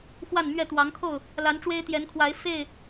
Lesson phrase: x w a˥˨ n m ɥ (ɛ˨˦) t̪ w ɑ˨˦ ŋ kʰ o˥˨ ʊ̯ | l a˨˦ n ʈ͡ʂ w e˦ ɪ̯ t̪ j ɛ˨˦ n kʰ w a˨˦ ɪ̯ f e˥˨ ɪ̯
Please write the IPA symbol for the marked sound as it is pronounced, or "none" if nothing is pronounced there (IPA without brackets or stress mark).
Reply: ɛ˥˨